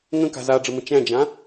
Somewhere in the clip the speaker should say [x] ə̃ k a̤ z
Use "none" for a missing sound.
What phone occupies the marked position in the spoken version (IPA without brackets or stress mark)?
ŋ